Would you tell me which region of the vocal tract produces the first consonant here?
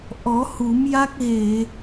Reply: throat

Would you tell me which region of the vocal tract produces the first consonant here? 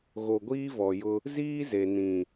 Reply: velum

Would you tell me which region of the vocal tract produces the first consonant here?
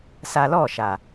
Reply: tongue tip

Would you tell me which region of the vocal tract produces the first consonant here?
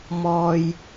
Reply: lips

